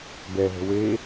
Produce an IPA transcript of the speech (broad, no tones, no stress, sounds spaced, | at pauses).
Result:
b ɛ ɦ ə̤ w e